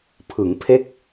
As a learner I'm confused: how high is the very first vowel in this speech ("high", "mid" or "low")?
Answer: high